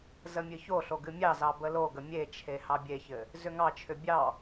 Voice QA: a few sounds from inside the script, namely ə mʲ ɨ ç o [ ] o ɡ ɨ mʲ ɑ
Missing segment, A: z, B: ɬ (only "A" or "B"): B